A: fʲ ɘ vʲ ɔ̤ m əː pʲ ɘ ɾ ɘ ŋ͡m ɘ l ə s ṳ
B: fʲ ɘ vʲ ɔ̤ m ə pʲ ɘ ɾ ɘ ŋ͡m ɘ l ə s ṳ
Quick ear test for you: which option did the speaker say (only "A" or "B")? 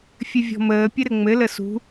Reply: A